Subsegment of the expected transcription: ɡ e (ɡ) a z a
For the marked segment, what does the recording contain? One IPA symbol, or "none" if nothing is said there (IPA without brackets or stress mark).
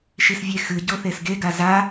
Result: ɡ